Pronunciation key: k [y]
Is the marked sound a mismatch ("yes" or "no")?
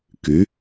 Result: no